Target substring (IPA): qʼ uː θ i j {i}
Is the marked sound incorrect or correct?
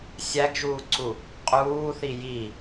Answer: correct